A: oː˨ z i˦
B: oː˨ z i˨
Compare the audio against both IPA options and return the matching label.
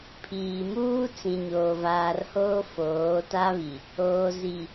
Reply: B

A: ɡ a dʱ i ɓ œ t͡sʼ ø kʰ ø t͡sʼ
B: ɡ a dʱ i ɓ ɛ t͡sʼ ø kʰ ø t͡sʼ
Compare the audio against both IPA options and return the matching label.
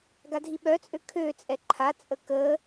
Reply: A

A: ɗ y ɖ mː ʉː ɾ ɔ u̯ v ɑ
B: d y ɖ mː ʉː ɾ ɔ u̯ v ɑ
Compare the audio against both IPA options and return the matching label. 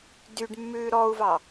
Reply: B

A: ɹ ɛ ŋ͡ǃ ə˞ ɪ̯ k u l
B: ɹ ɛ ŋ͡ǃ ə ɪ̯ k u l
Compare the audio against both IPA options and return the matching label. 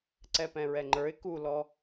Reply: A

